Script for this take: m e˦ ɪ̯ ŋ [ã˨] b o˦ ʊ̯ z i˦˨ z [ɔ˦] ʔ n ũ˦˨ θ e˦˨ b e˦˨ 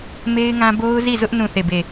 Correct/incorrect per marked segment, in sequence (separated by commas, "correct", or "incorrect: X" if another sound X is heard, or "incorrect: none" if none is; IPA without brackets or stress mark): incorrect: ã˦, incorrect: ʊ˦